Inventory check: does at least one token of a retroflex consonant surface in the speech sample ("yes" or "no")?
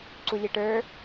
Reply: yes